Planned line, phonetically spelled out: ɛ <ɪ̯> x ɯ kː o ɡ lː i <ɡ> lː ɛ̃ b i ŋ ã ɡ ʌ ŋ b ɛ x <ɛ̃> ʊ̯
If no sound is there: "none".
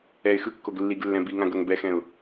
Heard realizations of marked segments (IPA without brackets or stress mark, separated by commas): ɪ̯, ɡ, ɛ̃